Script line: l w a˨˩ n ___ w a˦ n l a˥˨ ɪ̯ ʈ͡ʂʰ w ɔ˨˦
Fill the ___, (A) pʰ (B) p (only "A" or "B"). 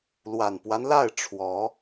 B